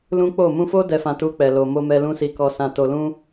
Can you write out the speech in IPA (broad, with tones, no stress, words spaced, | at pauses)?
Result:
lũ˦k͡po˦˨ mũ˧fo˦ dɛ˧fã˧ tu˧k͡pɛ˨lo˨ mo˧mɛ˧ lũ˦si˧ kɔ˨sã˨to˨lũ˧